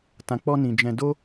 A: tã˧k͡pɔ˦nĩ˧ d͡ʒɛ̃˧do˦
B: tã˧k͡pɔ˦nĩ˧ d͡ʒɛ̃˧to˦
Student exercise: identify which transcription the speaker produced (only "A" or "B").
A